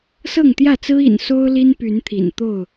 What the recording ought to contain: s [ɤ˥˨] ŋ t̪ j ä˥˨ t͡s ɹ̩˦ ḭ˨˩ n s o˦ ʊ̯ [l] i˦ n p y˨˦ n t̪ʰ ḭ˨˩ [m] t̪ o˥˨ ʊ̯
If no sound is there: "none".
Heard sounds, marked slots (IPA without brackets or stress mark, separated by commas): ɤ˥˨, l, n